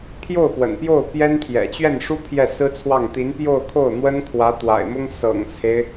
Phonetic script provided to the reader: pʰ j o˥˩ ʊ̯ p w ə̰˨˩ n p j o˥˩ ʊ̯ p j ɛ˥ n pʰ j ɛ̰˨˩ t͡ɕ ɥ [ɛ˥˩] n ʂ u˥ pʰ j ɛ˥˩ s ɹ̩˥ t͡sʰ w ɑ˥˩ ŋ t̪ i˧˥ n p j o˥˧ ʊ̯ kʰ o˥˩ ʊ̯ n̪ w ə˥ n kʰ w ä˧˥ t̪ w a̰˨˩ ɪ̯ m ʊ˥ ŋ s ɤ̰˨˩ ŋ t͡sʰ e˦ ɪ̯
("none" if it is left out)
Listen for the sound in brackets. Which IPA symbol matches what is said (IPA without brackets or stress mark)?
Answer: ɛ˥˩